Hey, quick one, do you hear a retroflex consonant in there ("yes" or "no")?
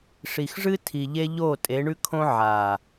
yes